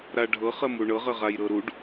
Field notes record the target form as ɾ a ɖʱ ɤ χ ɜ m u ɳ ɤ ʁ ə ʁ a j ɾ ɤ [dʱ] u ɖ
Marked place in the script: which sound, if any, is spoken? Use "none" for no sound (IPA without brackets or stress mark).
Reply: ɾ